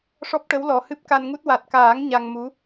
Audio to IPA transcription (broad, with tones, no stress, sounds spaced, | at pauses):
ʂ ɔ˦˥ p̚ ʈ ə˧˥ w l ɔ˨˩ h ɨ˦˥ p̚ k a˧ n ŋ u˦˥ t̚ w a˨˩ t̚ k aː˨˩˦ ŋ ɲ a˧ ŋ m u˧˥